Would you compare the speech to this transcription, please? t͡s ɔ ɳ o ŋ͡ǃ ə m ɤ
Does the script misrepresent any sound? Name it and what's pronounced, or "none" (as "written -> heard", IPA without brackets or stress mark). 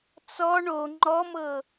ə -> ɔ